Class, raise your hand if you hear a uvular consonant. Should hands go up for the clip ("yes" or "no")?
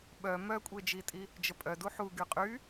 yes